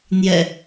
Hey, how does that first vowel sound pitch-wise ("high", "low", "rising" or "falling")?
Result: low